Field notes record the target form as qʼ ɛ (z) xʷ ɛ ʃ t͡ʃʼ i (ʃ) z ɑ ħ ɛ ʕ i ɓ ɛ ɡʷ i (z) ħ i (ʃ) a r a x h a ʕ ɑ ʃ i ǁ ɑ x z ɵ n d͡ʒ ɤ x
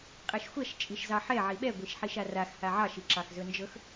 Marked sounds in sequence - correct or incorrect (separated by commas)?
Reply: incorrect, correct, incorrect, correct